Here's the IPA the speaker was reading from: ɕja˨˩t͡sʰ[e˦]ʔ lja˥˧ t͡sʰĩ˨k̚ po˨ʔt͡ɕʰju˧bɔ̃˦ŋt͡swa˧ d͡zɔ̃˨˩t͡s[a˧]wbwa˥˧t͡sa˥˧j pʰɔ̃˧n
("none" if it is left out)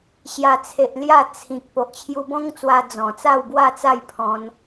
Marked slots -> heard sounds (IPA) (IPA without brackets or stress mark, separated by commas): e˨, a˥˧